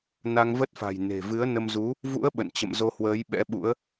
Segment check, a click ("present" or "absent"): absent